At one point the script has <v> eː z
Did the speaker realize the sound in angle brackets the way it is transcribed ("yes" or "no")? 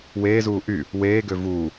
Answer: no